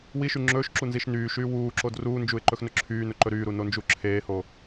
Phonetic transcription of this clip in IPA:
w i ʃ y ŋ͡ǁ ɵː ʃ ǁ u n z i ʃ n yː ʃ yː w uː ǁ o d r uː n d͡ʒ u ɪ̯ ǃ ɵ x n ɵ ǁʰ yː n ɵ ǃ ɵ ɾ yː ɾ u n o n d͡ʒ u ǁʰ eː h o

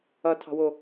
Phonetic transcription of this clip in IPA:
ʌ tʰ ɑ̤ w o

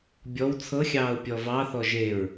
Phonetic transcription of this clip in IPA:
bʲ ɔ w t͡sʰ ɤ xʲ ɑː ʊ̯ pʲ ɔ v ɑ θ ɔ ʒ e ɹ

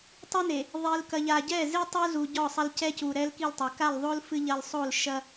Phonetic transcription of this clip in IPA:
tˤ i˦ n e˨ | ðˤ i˨ l k ɐ˨ ʎ a˨ ɟ ɛ˦˨ z i˦ tˤ u˦ z u˨ ɟ ɔ˦˨ sˤ ɐ˦ l c ɛ˦ c u˨ ɾ ɛ˦ l k i˦˨ l tˤ ɛ˨ k a˦˨ l ðˤ o˦ l f ɨ˦ ʎ ɐ˦ l sˤ o˦˨ l ʃ ɐ˦

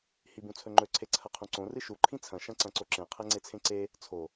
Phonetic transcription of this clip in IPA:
h i b ũ t͡sʰ ɵ ŋ͡ǃ ɵ ǀʰ e ǀʰ ɐ qʰ ũ ǀ õ r ɨ ʃ u ǃʰ ĩ t͡sʰ ɐ̃ ʃ ɐ̃ ǀ ɐ̃ ǀ o ǁ ẽ qʰ e ŋ͡ǀ e t͡sʰ ẽ ǀ e | t͡sʰ o

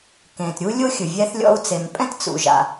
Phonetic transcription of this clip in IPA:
k ẽ˩ t ɾʲ u˥ lʲ o˥ xʲ ɯ˩ vʲ ɛ˥ θ lʲ ɔ̰˥ u̯ t͡s e˩ m pʼ ɛ̃˥ t t͡s ṵ˩ ʒ a̰˩

